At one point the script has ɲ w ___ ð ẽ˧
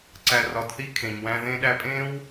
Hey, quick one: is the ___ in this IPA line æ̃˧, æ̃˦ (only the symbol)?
æ̃˧